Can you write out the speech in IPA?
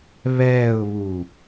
β ɛː ʊ̯ β u

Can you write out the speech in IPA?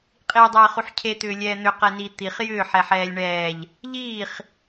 qʼ iː dˤ ɛː χ u ħ cʰ e t̪ ʏː lʲ ɛː n̪ ʏ q ɛ n i t̪ i χ j ʏː ħ ɛ ħ ɛː lʲ ɳ ɛː ʎ | ʎ iː χ

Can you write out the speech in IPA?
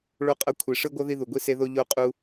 ɭ o˧ qʼ ʌ˧ kʷʰ i˧ ʂ ɯ˦ ɡʷ ʌ˦ ð i˧ ð u˨ ɡʷ i˧ s e˧ ð o˧ ʎ o˧ qʼ u˧

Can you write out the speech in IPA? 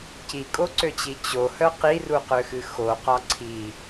c i kʼ o ǀ ø t͡ɕ i t͡ɕ o h œ q i r u q ø x ɨ x o q ɒ ǀʰ i

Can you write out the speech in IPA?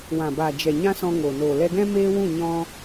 w ã˨ b aː˨ d͡ʒ ɛ˨ ɲ ã˦ s ɔ̃˧ ŋ o˨ n oː˨ l ɛ˧ ɡ ɛ̃˦ m eː˦ w ũ˦˨ ɲ ɔ̃˧

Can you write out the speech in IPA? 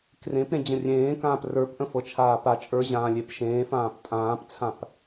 k r ẽ p ɾ ẽ d͡ʑ ə̃ rʲ ẽː k ãː p r ə˞ p ʔ ə̃ f ɤ t͡ʃʰ aː p a t͡ʃʼ ə˞ ʑ ãː lʲ e p ʃ ẽː f ãː p tʼ ãː p t͡sʰ ã p

